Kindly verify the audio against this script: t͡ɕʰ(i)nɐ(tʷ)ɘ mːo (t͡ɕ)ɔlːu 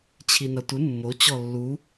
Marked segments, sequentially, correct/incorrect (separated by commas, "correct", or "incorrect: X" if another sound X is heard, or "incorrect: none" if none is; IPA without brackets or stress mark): correct, correct, correct